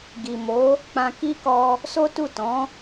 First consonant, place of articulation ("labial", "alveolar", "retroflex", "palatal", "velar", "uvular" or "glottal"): velar